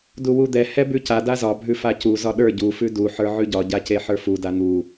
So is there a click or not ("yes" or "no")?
no